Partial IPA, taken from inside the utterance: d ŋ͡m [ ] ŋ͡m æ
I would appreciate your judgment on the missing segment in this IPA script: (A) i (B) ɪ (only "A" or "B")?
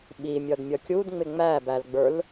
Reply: B